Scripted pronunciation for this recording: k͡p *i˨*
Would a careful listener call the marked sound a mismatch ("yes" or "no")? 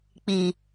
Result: no